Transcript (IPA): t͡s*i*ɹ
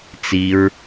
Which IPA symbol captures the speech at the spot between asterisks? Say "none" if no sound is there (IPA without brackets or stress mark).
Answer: i